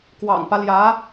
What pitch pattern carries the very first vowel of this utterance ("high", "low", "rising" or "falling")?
low